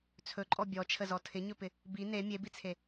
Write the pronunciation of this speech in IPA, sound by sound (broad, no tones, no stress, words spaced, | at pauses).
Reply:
t͡sʰɵǃʼɔ bʲɔt͡ʃʰəzɔ tʰɪɲɵpɪ | bi ne mʲebit͡sʰe